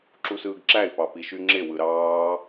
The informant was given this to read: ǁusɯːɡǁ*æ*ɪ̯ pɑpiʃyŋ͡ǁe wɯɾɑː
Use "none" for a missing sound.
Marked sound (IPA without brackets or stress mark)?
æ